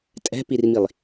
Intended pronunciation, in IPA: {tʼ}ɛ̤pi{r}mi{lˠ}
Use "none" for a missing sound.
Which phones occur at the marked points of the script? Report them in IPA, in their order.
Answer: tʼ, r, lˠ

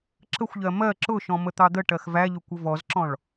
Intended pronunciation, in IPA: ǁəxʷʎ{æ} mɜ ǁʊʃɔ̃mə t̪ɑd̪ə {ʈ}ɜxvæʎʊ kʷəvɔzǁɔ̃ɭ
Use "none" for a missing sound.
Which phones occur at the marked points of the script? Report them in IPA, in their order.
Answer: ɜ, ʈ

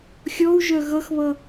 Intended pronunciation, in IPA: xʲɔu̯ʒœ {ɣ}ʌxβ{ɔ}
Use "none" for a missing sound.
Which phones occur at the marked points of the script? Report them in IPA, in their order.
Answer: ɣ, ʌ

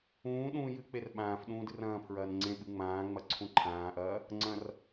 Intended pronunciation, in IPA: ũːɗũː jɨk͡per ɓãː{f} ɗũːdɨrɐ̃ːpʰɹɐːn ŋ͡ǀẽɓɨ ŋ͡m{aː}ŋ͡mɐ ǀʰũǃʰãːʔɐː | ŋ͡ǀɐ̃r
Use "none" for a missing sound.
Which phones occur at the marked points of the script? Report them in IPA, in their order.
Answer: f, ãː

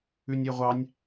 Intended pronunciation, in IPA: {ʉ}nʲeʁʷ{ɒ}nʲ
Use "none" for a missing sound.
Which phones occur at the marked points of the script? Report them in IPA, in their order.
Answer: ʉ, ɑ

